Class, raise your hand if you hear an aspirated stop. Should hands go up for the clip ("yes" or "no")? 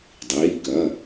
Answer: no